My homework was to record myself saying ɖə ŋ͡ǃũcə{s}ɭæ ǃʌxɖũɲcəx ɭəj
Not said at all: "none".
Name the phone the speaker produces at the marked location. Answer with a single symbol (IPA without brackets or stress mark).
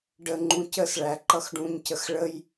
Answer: s